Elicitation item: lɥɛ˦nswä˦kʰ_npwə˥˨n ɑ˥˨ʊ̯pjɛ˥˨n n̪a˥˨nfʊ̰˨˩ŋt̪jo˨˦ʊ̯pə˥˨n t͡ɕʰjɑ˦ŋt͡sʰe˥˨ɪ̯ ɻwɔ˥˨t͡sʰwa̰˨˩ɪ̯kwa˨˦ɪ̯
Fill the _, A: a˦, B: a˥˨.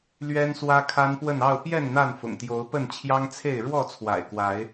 A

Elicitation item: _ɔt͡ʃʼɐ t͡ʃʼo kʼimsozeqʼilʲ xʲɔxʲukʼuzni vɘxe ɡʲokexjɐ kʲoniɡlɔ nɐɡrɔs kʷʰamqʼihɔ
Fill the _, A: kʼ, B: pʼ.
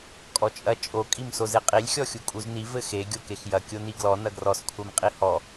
A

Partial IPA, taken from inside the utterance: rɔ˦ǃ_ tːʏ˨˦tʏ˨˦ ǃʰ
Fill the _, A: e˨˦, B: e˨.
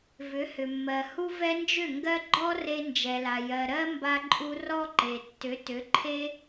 B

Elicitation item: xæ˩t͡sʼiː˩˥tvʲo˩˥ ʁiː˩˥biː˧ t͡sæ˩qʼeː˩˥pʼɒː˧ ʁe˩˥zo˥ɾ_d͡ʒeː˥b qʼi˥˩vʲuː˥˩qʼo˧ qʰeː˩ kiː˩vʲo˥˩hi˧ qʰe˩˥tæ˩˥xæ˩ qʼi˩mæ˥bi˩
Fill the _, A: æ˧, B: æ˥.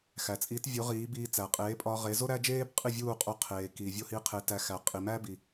B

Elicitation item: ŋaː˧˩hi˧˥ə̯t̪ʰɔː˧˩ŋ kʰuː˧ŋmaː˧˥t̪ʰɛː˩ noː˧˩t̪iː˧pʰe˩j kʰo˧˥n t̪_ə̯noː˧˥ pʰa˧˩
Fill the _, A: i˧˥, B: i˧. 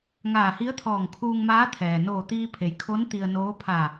B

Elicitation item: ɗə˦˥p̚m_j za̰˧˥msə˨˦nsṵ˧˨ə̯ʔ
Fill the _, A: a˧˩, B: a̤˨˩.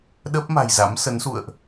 B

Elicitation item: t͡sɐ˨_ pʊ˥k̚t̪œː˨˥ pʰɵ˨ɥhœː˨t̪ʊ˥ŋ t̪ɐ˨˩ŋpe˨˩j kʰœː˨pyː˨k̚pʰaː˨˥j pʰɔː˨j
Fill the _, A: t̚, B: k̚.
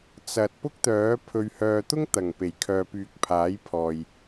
A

